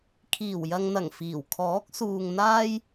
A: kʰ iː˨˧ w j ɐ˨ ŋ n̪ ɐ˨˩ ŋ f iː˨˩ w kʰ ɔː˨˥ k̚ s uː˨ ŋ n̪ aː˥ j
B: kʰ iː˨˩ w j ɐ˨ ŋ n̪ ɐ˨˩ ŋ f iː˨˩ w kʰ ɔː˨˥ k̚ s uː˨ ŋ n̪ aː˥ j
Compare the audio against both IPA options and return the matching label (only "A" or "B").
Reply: B